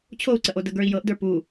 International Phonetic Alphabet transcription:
t͡ɕʰ o u̯ ǀ ə ʔ o d ə ɡ ə˞ i̯ j ɤ ʔ d ə˞ p u

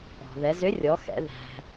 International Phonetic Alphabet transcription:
ɔ̤˩ ð ɛ˩˧ z ʏ˧˥ rʲ ɔ˩˧ x ɛ̰˩˧ ð æ̤˧

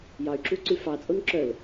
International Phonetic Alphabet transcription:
j ɑ y̯ ǁ u ǀ y f ɑ t͡sʼ o n ǁ œ l

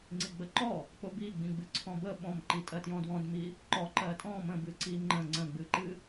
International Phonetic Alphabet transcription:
ŋ͡ǀ i ɡ͡b ə ǃ ɔ | k͡p ʊ b i ɡ͡b ĩ ɡ͡b ɨ ǀʰ ɔ̃ b ə ɓ ɔ̃ m ǃ i tʼ ɜ t j ɔ̃ d w ɔ̃ d m i | ǃ ɔ ǃ ɜ tʼ ɔ̃ m ə̃ b ɨ ǀ i ŋ͡ǃ ə̃ ŋ͡ǀ ə̃ ɡ͡b ɨ ǃ ɨ

